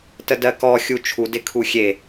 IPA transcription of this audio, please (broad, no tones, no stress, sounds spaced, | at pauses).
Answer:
t ə d ɜ k ɔ xʲ u t͡ʃʰ u d ɪ kʰ u xʲ e